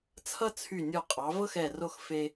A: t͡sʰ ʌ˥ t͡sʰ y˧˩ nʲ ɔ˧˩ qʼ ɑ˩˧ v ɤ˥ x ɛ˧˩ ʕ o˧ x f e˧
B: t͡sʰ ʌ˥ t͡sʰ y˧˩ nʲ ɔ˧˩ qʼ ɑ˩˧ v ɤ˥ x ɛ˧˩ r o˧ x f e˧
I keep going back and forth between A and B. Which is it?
B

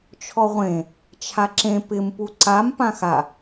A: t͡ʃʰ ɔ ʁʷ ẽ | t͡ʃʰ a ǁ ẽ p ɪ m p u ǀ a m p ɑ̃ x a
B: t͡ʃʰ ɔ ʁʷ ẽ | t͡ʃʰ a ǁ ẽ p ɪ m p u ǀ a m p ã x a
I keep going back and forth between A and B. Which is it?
B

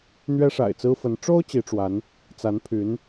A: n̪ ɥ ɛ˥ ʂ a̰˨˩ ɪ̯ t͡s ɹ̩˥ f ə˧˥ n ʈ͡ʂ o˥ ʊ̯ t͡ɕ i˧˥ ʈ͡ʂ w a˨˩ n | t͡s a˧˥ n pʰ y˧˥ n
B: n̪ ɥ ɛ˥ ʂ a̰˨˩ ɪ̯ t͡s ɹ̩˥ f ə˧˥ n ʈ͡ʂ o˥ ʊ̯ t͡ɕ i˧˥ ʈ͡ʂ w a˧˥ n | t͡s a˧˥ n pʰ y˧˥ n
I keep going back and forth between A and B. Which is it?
B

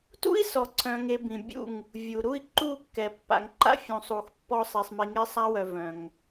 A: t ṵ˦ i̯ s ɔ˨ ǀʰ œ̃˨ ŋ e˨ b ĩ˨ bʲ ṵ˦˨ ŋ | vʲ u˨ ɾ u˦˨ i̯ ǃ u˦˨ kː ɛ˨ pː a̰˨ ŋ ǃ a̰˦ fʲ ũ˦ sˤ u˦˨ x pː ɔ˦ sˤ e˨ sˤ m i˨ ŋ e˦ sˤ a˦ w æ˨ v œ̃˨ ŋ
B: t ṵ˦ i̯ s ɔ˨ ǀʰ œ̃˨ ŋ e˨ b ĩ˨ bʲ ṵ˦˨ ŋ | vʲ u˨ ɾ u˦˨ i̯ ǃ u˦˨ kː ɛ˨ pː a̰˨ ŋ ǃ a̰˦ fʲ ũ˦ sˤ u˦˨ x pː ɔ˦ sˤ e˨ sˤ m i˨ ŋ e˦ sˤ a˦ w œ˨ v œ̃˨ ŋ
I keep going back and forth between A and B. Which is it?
B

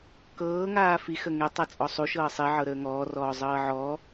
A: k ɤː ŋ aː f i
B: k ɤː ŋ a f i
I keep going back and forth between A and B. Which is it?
A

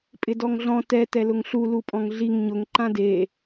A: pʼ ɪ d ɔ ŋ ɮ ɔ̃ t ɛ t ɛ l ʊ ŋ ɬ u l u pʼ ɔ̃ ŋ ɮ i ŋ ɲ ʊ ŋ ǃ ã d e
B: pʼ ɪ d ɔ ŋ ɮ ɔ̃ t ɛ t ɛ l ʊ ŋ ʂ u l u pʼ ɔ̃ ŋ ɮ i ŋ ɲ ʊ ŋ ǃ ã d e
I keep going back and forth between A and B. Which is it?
A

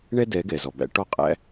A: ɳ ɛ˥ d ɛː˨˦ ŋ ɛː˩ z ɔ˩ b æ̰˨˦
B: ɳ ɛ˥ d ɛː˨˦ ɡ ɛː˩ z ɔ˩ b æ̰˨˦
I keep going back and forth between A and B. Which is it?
B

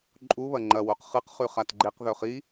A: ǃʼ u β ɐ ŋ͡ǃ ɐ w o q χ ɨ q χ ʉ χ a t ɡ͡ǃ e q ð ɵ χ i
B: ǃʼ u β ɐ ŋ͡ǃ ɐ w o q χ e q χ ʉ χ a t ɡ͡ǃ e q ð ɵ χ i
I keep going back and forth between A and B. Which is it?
A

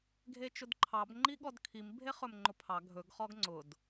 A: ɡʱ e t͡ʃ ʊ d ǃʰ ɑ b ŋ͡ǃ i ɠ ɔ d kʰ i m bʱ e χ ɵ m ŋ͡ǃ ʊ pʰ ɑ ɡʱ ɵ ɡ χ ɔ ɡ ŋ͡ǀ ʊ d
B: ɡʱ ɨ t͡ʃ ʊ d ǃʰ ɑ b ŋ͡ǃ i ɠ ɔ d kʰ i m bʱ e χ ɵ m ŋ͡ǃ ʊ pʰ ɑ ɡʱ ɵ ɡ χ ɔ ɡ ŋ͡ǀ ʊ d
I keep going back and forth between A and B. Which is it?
A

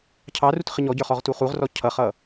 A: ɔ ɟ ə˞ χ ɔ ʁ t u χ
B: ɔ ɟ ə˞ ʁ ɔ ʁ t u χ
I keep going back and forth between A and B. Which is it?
A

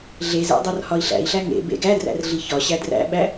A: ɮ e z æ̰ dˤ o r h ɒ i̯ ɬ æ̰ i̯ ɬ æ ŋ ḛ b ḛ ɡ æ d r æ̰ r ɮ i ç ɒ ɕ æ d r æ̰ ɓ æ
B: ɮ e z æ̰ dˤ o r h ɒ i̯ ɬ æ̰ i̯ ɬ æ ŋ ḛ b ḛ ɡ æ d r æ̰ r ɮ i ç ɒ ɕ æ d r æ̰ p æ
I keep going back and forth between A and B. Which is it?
A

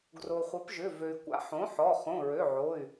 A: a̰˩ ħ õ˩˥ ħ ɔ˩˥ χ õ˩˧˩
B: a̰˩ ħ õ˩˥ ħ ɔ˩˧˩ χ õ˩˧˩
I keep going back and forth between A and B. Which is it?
B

